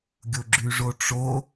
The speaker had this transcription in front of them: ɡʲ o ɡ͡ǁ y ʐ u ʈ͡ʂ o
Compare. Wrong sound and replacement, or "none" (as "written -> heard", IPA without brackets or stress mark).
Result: u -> o